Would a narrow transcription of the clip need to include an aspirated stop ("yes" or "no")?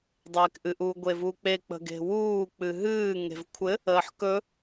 yes